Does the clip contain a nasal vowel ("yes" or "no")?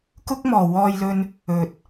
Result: no